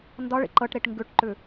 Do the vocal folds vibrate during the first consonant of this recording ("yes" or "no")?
yes